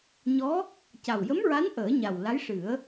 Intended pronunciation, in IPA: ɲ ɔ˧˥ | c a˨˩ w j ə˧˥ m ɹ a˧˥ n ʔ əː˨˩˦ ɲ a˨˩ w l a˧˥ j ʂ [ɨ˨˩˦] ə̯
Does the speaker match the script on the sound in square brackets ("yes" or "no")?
yes